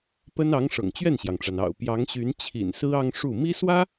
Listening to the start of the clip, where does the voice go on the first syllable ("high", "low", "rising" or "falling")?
high